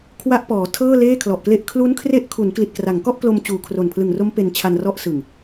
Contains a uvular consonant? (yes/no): no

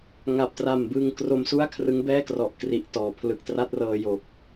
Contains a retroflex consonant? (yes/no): no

